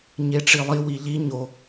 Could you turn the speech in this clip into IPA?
ɲeʈ͡ʂilˠi wiʎi ɲo

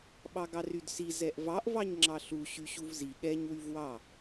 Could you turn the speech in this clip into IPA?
ɓɑɡɑrydsi zɛʔvɑʔ vɑɲŋ͡ǁɑɬu ɕyɕuvzi ɠɛɲ wyvwɑ

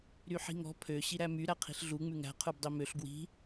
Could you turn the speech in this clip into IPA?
ɾyħi̤ŋɔ̤ pʰø ɕiɾæmy ɾæqʰi̤ɬɮu ŋ͡mʉŋæ̤ qʰʉbdˤimøɬ ɡwi̤

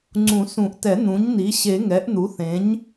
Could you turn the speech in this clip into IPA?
ŋ͡ǀũ˨˩˦sũ˨˩˦ʔtɛ˨˩˦ n̪ũ˩˥ɲni˩˥ ɕe˨˩˦ ŋɛ˩˥ʔn̪u˩˥θẽ˩˥ɲ

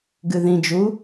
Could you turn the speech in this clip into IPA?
ɡɨðĩd͡ʒu

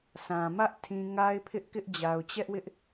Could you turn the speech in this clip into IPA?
sã˨ mä˦ʔ tʰĩ˦ ŋa˦ɪ̯pʰɪ˦ʔkɪ˦ʔ d͡ʑa˨ʊ̯t͡ɕɛ˦ʔwɪ˦ʔ

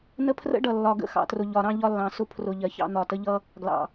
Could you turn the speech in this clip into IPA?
nə˦pʰrə̰˦ɖʌ˨ lːɒ˨ɡə̰˦ xɑ̰˨trʊ˨ ʎɒ˨ ɾɑ̃˦ʎɒ˦lːɑ̃˨sʊ˦ pʰrʊ˨ ʎɜ˨çɑ̰˦n̪ɒ˨tə˦ ʎʌ˦ | ɡlɑ̰˨

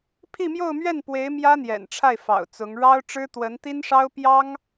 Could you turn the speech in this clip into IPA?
pʰi˥˧mjo˥˧ʊ̯mɥɛ˥˩npwe˧˥ɪ̯ mjä˥n̪jɛ̰˨˩nʈ͡ʂʰa˥˩ɪ̯ fɑ̰˨˩ʊ̯t͡sʊ˧˥ŋ ɻɑ˥ʊ̯ ʈ͡ʂɻ̩˥t̪wə˧˥nt̪i˥nʂɑ˥ʊ̯ pjɑ˥ŋ

